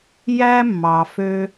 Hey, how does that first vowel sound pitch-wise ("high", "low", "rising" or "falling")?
high